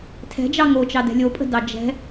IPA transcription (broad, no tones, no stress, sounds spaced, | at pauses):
tʰ ɛ̤ d͡ʒ ɑ ŋ o t͡ʃ ɑ d ɛ̤ lʲ o pʼ ə̤ d ɑ d͡ʒ ɛ̤